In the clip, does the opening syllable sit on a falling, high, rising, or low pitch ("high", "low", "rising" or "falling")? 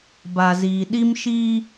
low